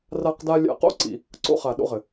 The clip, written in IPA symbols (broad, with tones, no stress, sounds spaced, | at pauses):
r a˥ q d a˥ lʲ a̰˥ q o̰˥ ǀ ḭ˧ | ǀ o̰˥ χ a˧ ɗ o̰˥ ʁ ɘ˧